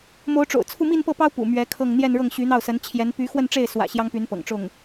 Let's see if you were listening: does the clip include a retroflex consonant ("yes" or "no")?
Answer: yes